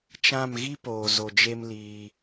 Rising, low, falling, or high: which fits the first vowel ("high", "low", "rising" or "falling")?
falling